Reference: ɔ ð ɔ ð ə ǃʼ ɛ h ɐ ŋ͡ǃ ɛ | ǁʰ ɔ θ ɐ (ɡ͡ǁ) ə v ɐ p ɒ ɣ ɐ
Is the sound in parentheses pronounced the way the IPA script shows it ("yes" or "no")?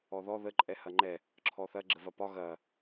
yes